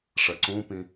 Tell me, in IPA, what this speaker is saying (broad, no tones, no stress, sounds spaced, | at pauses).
ʂ ɐ ǀ ũ p ĩ